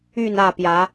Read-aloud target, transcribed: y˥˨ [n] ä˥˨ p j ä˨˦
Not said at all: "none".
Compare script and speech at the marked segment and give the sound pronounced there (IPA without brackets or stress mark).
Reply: n